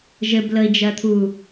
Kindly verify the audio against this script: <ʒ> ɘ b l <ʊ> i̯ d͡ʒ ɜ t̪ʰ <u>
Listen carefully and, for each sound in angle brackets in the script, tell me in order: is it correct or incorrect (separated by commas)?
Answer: correct, incorrect, correct